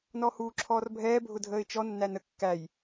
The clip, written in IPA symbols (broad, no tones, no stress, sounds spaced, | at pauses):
n ɔ h uː ǁʰ ɔː r bʱ ɛː bʱ ʊ dʱ əː ɪ̯ t͡ʃ ɔ nː æ n ə kː æ j